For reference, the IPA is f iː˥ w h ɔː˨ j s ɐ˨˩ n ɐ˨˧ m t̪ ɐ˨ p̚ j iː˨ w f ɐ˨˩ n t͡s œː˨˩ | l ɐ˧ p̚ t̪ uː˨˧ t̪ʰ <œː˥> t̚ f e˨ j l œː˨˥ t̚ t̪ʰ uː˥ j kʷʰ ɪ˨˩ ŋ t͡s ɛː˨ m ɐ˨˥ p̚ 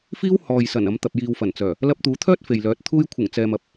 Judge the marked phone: correct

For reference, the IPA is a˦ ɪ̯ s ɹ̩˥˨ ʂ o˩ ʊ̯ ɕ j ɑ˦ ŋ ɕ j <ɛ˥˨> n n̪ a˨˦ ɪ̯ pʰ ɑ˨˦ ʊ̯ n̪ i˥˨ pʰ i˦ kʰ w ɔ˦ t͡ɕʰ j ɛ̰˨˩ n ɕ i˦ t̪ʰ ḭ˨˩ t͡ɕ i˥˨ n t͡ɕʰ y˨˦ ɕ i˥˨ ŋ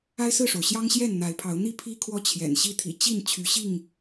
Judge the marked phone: correct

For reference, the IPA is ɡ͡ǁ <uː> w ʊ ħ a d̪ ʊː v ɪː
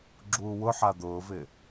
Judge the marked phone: correct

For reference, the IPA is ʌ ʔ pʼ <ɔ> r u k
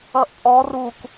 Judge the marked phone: correct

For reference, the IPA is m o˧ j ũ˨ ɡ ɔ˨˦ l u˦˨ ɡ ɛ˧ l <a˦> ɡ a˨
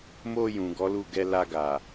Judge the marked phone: incorrect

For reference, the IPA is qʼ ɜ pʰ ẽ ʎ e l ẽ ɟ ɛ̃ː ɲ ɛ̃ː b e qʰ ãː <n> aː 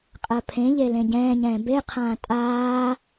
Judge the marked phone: incorrect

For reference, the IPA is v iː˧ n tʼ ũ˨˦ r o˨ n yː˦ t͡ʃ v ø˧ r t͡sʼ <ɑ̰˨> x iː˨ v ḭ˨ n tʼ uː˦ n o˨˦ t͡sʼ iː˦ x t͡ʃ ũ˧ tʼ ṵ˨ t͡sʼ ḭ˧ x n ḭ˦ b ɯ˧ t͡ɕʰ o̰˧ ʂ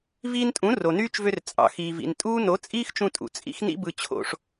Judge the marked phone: correct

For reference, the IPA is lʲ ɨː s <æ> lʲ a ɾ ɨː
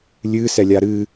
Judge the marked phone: incorrect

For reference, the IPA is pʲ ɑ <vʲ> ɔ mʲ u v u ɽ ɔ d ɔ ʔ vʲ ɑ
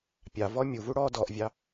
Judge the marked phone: incorrect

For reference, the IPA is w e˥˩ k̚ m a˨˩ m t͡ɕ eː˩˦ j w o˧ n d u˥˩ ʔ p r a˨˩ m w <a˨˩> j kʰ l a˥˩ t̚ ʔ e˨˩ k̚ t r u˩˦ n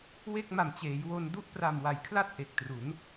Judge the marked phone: incorrect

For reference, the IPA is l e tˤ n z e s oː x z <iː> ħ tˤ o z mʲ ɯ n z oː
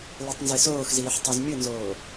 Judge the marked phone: correct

